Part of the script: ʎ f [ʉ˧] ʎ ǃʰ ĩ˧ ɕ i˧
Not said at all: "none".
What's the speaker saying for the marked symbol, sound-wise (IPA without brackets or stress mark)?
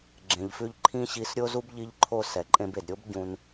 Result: ʉ˧